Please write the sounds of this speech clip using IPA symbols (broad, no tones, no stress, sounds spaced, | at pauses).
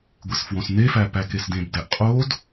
ɡʷ e s f w õ s n e f æ p æ k e s d ẽ b d æ ʔ qʼ o d